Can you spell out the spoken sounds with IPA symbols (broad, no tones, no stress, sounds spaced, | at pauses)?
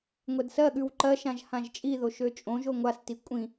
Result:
ŋʷ ɛ d s ɜ ɠ ʉ w ǃ ɜ ʃ ã ʒ h ã ʒ t͡ʃʼ i ð o ʃ ø t͡ʃʼ õ ʒ o ŋʷ a s t i kʷʼ ĩ